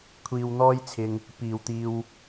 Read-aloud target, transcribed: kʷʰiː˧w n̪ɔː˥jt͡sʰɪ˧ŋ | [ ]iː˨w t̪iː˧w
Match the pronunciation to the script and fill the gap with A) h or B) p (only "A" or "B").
B